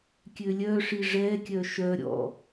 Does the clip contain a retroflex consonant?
yes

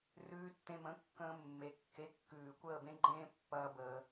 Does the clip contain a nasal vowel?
yes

